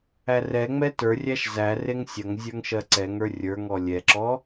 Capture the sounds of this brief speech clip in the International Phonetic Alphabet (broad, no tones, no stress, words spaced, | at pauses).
ærɛŋ͡mɛ tə˞rʲæʃ zæ reŋsʲɐŋzʲə˞ŋ ʃɜǀɛŋə˞ rʲə˞ŋɔ lʲɛǁɔ